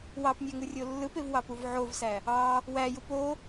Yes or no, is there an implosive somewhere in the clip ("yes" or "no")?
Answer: no